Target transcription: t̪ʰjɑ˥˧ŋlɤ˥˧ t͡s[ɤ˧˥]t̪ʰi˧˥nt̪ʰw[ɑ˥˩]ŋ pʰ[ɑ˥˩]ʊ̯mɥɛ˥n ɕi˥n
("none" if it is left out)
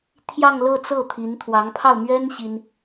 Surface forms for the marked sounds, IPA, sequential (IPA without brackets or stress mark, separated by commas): ɤ˥˩, ɑ˧˥, ɑ˥˩